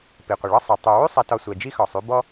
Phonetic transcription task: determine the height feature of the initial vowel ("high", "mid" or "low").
high